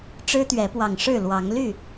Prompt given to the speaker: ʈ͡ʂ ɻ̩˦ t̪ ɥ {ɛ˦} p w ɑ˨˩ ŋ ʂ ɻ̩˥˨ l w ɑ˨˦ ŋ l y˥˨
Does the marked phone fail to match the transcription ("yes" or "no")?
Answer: yes